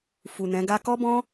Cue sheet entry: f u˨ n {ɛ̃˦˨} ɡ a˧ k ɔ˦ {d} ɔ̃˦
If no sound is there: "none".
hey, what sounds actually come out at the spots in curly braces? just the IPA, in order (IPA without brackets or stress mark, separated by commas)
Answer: ɛ̃˨˦, b